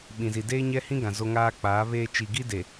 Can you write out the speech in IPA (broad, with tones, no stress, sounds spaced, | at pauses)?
ɓ ĩ˨ z i˨ d eː˦ ɲ ɛ˦ h ĩ˦ ɡ ã˨ z o˦ ŋ aː˦ k͡p aː˨˦ β eː˦ t͡ʃ i˨ ɡ i˦ d e˨